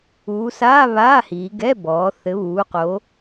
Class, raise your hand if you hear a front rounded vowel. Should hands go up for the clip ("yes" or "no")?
no